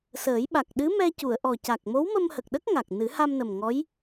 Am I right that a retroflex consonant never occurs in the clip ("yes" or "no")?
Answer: yes